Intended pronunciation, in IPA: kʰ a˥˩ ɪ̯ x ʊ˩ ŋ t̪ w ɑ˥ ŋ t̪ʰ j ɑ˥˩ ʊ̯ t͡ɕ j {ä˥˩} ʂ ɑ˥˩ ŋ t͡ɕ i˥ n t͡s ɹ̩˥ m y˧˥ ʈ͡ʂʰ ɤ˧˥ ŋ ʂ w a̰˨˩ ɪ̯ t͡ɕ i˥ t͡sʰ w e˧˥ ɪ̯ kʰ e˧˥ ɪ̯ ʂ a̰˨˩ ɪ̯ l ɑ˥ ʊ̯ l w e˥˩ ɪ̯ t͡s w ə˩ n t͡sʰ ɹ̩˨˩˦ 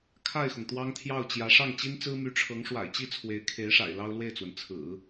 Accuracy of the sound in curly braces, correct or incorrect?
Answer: incorrect: ä˧˥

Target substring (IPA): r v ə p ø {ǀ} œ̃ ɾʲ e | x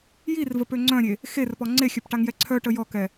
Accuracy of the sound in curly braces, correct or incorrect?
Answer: incorrect: ŋ͡ǀ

